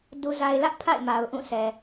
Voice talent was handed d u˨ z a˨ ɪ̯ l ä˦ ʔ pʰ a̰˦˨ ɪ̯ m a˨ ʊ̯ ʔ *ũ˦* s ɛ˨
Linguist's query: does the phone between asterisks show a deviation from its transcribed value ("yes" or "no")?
yes